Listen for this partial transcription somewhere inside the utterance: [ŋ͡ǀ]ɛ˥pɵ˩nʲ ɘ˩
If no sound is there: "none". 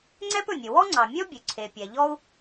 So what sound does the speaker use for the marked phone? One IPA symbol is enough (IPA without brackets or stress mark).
ŋ͡ǀ